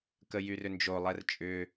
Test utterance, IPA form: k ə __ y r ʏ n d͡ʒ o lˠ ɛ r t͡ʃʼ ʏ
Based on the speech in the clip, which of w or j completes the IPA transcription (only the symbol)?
j